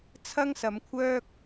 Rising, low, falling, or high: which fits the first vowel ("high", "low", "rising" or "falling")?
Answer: high